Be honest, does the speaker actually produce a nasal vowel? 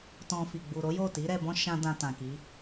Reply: yes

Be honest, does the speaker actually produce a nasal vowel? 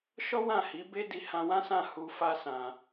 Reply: yes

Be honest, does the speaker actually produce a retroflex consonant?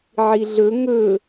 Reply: no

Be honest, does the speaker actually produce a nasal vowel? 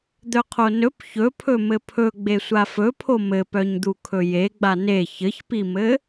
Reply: no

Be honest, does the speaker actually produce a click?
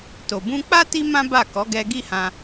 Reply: no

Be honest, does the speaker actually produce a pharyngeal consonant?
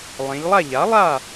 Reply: no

